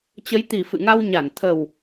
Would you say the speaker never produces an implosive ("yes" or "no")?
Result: yes